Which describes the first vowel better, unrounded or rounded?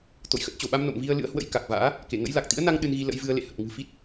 rounded